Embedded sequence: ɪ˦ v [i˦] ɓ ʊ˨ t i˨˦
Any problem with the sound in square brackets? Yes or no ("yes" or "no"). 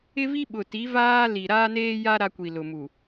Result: no